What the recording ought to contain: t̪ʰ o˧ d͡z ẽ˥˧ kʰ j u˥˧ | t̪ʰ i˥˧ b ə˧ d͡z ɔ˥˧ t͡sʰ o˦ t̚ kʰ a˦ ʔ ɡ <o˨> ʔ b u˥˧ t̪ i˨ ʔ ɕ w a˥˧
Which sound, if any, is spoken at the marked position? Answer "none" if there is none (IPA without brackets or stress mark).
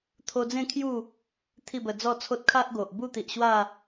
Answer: o˨